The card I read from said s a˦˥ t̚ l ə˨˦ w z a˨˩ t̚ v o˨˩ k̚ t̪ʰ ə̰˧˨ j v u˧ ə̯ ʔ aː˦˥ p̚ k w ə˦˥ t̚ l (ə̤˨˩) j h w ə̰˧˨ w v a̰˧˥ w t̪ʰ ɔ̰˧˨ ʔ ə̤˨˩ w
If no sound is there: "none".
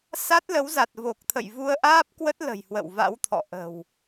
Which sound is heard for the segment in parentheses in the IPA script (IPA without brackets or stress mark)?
ə̤˨˩